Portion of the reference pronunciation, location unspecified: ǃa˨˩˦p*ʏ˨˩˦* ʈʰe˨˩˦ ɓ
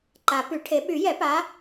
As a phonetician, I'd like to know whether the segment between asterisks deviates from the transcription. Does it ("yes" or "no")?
yes